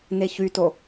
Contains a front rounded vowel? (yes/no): yes